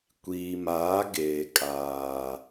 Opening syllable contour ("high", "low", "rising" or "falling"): low